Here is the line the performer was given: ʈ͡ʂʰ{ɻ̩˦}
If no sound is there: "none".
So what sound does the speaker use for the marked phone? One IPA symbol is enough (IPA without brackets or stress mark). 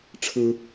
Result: ɻ̩˦